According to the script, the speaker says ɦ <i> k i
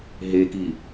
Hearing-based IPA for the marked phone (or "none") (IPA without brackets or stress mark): e